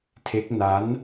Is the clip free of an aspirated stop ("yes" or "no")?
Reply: no